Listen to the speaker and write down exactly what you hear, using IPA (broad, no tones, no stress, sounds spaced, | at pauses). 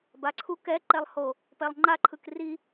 b a ǀʰ u k ɛ ǃ ɛ lˠ h o | p ɛ lˠ ŋ͡ǃ a ǃʰ ɯ k r i